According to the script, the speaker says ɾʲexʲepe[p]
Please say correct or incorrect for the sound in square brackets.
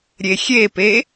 incorrect